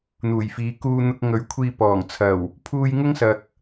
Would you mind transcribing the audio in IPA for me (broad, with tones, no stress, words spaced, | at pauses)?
n̪uː˨˩jfiː˨˧ kuː˧n̪ʊ˧k̚ ŋɵ˨˥ɥkʷʰiː˧pɔː˨˩ŋ t͡sʰɐ˨˩w | pʰuː˧jŋʊ˥ŋsɐ˨k̚